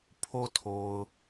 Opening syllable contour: low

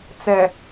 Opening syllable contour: low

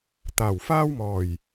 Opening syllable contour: low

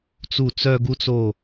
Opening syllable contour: falling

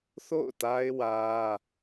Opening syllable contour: falling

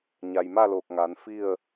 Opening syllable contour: low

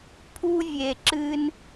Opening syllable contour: high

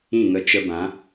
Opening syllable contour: falling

